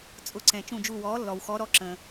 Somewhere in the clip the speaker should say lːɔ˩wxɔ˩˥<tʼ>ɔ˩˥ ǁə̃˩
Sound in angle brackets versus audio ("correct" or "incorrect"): incorrect